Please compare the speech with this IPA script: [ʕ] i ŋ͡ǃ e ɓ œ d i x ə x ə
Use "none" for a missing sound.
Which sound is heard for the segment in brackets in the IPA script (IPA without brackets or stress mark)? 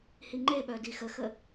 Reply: h